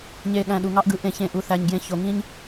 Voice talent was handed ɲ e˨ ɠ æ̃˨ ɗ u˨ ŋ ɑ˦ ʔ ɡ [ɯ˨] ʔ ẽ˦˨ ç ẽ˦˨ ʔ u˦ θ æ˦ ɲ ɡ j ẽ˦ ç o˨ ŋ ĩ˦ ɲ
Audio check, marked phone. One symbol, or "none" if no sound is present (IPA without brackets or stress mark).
ɯ˨